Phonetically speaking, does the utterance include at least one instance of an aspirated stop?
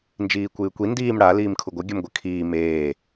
yes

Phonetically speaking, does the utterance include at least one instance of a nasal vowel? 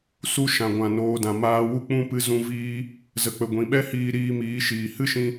yes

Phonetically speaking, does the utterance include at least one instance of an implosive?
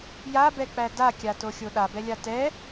yes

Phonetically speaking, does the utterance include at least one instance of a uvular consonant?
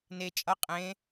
yes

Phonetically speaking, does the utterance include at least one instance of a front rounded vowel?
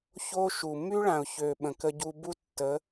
yes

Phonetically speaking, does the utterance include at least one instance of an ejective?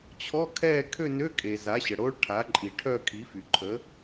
yes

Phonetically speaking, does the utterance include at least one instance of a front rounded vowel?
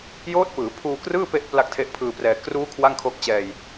no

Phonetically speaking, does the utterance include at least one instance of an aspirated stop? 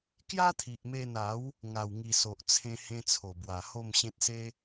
yes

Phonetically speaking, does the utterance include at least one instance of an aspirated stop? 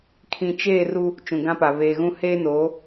yes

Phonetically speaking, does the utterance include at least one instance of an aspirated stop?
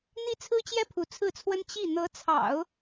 yes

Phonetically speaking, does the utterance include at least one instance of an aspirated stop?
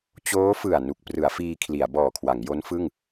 yes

